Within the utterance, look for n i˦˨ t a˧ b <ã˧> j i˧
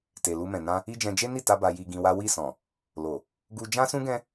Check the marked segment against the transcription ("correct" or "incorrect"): incorrect